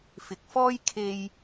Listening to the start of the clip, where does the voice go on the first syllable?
rising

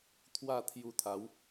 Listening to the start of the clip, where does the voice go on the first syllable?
falling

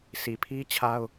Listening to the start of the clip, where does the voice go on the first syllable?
low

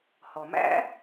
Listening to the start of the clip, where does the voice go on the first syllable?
low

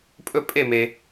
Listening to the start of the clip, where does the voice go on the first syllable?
falling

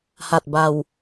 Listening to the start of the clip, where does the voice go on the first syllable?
low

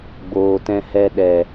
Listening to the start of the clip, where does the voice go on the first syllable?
low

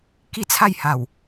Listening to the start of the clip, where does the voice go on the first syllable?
falling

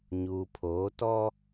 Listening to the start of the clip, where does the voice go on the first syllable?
low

